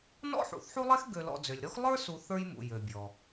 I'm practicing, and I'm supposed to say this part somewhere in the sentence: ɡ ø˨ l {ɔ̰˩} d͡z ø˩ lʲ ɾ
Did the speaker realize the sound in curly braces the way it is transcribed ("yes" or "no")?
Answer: no